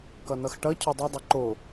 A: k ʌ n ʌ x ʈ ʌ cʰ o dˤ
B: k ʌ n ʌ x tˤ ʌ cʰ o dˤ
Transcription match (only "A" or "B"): A